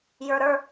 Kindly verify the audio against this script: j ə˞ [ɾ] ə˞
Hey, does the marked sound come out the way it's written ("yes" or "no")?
yes